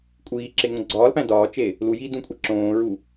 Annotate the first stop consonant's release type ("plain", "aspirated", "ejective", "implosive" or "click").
ejective